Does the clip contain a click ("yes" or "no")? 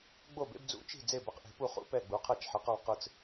no